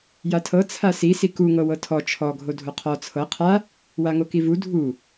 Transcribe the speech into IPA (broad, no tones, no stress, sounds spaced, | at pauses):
j a tʰ ɤ t͡sʰ a s i s i k u ŋ ɤ w ɤ tʰ ɔ t͡ʃʰ ɔ ɡʱ o dʱ o qʰ ɔ t͡sʰ ɤ qʰ a | w a ŋ o k i v u dʱ u